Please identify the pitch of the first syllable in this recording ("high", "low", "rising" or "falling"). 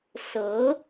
rising